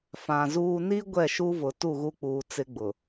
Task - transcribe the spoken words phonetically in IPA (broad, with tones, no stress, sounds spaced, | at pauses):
f ã˨ z uː˨ n i˦ ɡʷ ɛ˦˨ ʃ u˦ v ʊ˨ t u˦˨ ɣ u˦ k͡p uː˨ t͡s ɪ˦ ɡ͡b ʊ˨